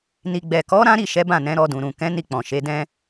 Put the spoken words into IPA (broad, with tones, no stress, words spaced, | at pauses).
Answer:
ni˨ɡ͡bɛ˨kɔ˨˦ ɾã˦ɾi˦˨ʃɛ˨˦ bã˦˨nɛ̃˨˦ ɾɔ˧dũ˨ɾũ˨ kɛ̃˨˦ni˧ k͡pɔ̃˨ʃe˨˦ dɛ̃˧